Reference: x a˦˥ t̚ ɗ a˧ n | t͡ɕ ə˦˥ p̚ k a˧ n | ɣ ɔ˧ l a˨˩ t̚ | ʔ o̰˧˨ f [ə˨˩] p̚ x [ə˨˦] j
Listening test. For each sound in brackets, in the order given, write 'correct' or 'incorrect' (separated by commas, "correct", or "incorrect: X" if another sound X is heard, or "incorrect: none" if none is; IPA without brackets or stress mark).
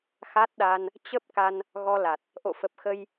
correct, incorrect: ə˧